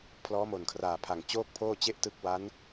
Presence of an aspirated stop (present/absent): present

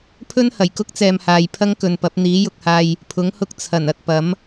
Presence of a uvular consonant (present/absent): absent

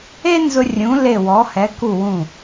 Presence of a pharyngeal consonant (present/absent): absent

